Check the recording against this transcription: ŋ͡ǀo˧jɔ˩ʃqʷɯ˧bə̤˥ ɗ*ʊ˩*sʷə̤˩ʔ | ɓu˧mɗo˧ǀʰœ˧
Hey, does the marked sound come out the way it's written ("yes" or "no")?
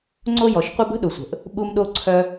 yes